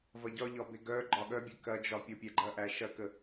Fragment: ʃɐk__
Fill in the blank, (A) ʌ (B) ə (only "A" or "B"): B